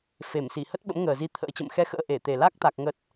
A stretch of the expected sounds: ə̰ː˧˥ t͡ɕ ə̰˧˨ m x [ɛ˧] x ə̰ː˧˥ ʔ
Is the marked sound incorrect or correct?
correct